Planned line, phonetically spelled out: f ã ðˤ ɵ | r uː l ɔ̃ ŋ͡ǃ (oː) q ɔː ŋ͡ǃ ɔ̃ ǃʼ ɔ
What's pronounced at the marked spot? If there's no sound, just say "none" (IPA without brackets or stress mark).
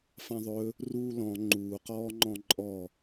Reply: uː